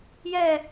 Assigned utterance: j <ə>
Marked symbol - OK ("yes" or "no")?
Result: no